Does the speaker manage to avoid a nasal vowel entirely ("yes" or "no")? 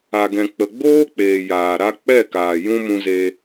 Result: no